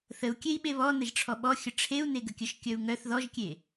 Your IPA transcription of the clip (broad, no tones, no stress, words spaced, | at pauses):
θəu̯kʲei̯ ɓeβɔnəʒ ʈ͡ʂʰɔɓɔxʲə ʈ͡ʂʰeu̯neɡəkʲœʃ kʲœu̯ŋœθ ðɔʒkʲe